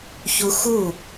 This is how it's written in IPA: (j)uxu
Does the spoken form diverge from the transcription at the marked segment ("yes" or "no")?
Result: yes